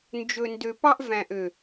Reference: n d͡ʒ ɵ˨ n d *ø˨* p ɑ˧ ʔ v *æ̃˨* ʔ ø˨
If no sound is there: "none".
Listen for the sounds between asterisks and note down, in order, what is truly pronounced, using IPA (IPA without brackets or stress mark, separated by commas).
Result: ø˨, æ̃˨